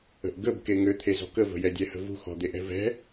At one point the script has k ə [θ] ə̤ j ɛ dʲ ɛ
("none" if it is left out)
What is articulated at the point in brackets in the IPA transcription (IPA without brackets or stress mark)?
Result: v